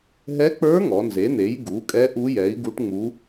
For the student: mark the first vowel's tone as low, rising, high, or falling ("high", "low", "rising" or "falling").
rising